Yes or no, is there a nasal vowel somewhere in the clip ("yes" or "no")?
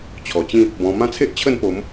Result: yes